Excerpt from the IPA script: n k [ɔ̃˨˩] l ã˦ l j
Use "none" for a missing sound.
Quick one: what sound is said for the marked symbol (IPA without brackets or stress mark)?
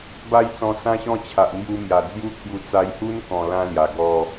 ɔ̃˨˩